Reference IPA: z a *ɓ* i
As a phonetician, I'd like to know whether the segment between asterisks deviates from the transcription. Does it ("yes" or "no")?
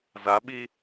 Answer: no